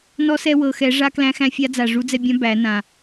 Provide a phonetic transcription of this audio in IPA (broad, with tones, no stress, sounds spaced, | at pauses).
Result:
n ɔ˧˥ s ɛ˧ w ɤ˨˩ x ɛ˨˩˦ ʐ a˧˥ k l æ̃˧˥ x æ̃˧˥ fʲ a˧˥ d͡z a˨˩ ʐ u˧˥ d͡z ɛ˧ bʲ ã˧˥ b æ˨˩˦ n ã˨˩